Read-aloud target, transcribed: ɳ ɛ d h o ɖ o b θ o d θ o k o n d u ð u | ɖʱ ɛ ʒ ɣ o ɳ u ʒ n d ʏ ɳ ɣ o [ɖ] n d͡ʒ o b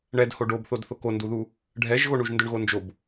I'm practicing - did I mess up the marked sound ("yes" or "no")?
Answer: yes